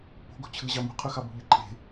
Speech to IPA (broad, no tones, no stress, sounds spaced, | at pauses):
p o̤ ɡ o̤ t͡ɕʰ ɯ ʑ ɑ m ṳ qʰ y x ɑ b o̤ ʎ ɯ ǃʼ e̤